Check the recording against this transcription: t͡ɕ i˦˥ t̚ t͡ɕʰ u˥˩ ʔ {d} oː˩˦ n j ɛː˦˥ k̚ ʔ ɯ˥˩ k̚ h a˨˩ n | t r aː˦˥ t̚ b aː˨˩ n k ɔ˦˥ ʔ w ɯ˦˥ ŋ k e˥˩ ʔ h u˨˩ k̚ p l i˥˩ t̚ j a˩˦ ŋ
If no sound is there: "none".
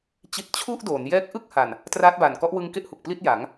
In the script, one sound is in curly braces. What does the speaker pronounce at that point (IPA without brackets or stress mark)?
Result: d